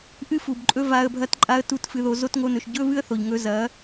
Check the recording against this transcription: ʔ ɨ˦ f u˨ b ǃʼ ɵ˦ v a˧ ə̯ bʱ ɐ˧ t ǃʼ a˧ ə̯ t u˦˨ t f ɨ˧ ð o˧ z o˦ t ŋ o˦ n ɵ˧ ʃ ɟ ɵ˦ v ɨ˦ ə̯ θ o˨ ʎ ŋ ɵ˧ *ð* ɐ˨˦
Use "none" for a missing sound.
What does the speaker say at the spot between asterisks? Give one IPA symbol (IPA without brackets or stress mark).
z